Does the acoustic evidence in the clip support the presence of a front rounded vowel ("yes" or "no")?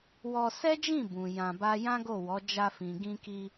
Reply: no